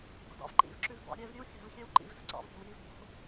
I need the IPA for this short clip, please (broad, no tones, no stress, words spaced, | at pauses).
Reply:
ɡo̤dɑ̰vǃḭvǁʉv bɑ̰ ɾʲɛv ɾʲʉwxʲa̤vxʲɛw ǃḭvzə̤ ǀɑ̰v ɾʲa̤wjiv bo̤